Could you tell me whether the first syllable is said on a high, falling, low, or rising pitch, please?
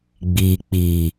low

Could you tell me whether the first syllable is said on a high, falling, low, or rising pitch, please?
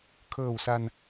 low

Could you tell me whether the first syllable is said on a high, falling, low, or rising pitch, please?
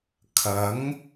rising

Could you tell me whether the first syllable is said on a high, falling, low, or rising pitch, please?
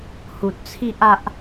low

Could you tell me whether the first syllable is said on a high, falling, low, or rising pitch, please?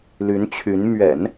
rising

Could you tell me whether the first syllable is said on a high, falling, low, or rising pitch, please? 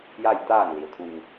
falling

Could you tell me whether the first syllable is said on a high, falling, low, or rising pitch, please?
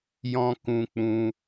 high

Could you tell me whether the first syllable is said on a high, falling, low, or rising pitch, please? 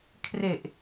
low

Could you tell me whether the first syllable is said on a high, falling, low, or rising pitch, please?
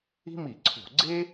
high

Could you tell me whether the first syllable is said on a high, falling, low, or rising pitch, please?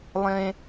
low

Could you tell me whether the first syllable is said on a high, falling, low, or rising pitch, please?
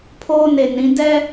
high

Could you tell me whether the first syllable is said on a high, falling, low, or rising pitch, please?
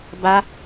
high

